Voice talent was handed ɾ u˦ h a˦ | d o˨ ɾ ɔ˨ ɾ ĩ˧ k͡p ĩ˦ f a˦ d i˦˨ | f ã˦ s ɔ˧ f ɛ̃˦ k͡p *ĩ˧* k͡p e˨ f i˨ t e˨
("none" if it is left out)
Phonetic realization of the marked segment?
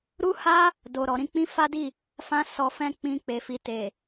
ĩ˧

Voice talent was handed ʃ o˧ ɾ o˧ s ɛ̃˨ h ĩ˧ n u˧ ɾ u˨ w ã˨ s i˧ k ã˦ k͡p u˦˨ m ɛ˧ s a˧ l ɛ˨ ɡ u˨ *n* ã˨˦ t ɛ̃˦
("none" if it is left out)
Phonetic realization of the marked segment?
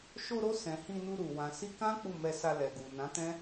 n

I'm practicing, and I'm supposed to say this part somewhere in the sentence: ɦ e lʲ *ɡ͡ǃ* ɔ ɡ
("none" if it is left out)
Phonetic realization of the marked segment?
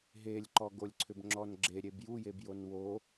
ǃ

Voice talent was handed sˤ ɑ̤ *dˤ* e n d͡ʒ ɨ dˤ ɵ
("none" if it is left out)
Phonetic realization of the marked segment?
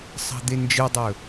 d̪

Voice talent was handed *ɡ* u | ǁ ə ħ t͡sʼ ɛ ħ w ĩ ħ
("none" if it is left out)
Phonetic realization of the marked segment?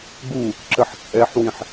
ɡ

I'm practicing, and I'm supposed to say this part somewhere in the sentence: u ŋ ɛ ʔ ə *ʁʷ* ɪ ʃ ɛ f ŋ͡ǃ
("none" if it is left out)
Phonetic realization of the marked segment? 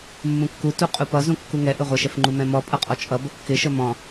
ʁʷ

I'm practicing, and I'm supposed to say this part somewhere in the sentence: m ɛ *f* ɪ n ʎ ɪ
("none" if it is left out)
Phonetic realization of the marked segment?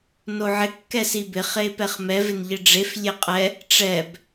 v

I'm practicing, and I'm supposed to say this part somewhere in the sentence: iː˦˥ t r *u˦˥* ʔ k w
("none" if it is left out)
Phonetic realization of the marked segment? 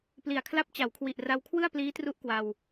u˦˥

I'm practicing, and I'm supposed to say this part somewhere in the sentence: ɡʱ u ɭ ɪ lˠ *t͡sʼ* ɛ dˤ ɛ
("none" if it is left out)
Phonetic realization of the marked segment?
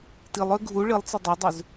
t͡s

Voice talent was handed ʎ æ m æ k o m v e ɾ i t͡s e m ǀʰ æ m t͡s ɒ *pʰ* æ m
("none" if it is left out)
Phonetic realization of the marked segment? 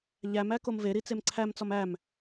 m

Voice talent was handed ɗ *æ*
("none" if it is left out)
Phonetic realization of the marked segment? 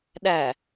æ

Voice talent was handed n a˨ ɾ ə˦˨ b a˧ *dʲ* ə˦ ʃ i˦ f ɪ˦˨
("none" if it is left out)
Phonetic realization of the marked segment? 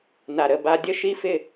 dʲ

